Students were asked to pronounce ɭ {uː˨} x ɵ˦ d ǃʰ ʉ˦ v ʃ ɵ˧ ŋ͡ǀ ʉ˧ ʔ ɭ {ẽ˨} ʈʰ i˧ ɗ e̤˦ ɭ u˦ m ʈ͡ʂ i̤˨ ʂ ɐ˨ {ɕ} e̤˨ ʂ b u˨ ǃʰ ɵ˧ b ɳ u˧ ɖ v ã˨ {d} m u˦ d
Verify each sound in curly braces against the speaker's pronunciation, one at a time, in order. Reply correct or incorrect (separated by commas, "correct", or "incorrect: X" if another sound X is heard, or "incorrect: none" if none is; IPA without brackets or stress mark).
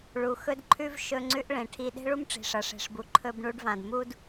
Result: incorrect: u˨, correct, incorrect: ʂ, correct